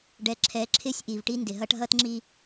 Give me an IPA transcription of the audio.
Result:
ɖ ɛ˨ ǁʰ ɛ˨˦ ǁʰ ɪ˦˨ sʲ ʔ i˨ v ʈ i˦ n d ɪ˨ ɦ ʌ˦ ʈ ɦ ʌ˦ t ŋ͡ǁ i˦

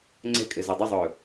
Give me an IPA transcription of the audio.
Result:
ŋ͡ǀ ɛ̤ kʼ ɘ z ø dˤ ɘ zˤ ɵː

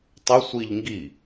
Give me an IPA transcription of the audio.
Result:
tˤ ʊ sʷ i ʎ ŋ ɡ i

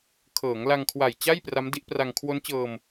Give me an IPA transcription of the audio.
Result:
kʰ ɤː˩˦ ŋ l a˧ ŋ kʰ w a˨˩ j t͡ɕ a˥˩ j p r a˦˥ m d i˦˥ ʔ p r a˧ ŋ kʰ w o˦˥ n t͡ɕ ɤː˧ m

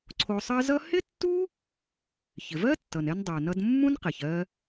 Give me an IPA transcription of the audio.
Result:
ǀʰ o˧ sˤ ɜ˥ z ʌ˥ h ɪ˥ tː u˥ | ç ɪ˩ v ɜ˥ tː ʌ˩ n ɛ˧ n dˤ ɜ˩ n ʌ˧ d mː ũ˥ n q ɛ˩ ç ɜ˧

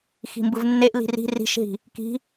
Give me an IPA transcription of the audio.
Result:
x i̤ m b ɯ v nː e ʔ l i̤ r i̤ r i̤ ʃ ɦ i̤ | k i̤

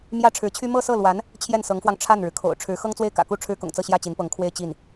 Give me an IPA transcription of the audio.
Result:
m j ä˥ ʈ͡ʂʰ ɻ̩˧˥ t͡ɕʰ y˥ m ɤ˥˧ s ɤ˥˩ l w a˧˥ n | t͡ɕʰ j ɛ˥˩ n s ɤ˧˥ ŋ f w ɑ˧ ŋ ʈ͡ʂʰ a˥˩ n ɻ ɻ̩˩ kʰ o̰˨˩ ʊ̯ ʈ͡ʂʰ ɻ̩˧˥ x ɤ˥ ŋ t͡s w e˥˩ ɪ̯ k ä̰˨˩ k u˥˩ ʈ͡ʂʰ ɻ̩˥ k ʊ̰˨˩ ŋ t͡s ɤ˥˧ ɕ j ä˥˩ t͡ɕ i˧˥ n p ɤ˧˥ ŋ kʰ w e˥ ɪ̯ t͡ɕ i˥˩ n

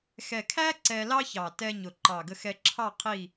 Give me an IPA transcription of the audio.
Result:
x ɛ˨˩ kʰ æ˥ ǀ ɛ˧ l ɑ˥ ç ɑ˨˩ t ɛ˧ ɲ ʊ˨˩ ǃ ɑ˨˩ ɡ ə˧ x ɛ˧ ǁʰ ɑ˥˨ qʰ i˥˨

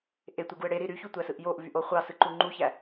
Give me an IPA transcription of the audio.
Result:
ʔ e tʷ e ɡ u ə̯ ɽ e ɾ i ɾ y ç u tʷ æ s ɯ ʔ j o ʔ v y ʔ o χʷ ɑ s ɯ ǃ u ŋ͡ǃ u ç æ

